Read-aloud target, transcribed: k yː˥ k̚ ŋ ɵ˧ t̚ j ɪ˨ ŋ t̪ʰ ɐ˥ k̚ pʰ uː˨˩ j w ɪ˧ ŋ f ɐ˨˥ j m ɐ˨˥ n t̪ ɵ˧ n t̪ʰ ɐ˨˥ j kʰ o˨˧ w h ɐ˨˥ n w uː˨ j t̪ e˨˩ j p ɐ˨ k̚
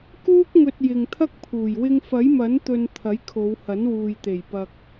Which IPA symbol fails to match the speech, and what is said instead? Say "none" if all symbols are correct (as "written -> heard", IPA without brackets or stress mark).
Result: yː˥ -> uː˥